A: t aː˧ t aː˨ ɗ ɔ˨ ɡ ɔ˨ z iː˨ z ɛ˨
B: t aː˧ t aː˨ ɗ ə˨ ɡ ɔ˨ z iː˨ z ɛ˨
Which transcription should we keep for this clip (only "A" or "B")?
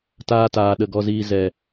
B